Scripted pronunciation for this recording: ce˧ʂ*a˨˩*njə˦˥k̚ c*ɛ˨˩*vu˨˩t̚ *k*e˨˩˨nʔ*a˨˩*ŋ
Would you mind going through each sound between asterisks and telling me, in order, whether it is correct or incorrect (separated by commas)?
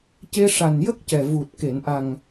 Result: correct, correct, correct, correct